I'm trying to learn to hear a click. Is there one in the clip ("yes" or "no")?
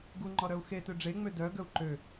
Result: yes